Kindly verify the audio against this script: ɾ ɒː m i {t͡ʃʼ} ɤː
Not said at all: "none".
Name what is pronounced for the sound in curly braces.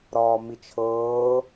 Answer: t͡ʃʰ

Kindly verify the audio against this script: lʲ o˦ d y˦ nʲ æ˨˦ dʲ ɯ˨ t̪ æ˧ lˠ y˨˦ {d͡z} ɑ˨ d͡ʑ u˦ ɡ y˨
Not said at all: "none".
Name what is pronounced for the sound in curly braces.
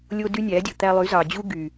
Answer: z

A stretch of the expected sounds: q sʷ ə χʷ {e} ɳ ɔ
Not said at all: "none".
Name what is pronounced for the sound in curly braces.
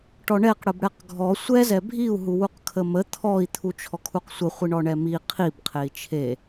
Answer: i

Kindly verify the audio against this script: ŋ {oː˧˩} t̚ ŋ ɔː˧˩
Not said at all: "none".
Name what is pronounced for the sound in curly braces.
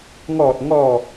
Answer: ɔː˧˩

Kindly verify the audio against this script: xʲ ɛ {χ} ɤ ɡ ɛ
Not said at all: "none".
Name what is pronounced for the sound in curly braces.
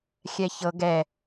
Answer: ç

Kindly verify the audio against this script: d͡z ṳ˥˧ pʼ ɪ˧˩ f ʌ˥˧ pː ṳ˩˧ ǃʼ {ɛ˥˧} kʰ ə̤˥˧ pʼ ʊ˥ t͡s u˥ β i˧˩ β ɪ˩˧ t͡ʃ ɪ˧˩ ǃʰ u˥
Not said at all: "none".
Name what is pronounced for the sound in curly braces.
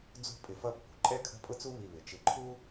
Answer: ɛ˥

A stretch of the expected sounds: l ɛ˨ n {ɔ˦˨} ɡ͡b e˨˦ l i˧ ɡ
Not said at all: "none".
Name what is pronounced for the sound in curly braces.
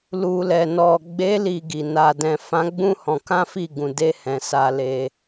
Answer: ɔ˨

